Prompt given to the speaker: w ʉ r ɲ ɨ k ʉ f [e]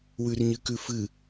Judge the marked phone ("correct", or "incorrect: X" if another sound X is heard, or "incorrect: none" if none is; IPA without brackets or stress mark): incorrect: ɨ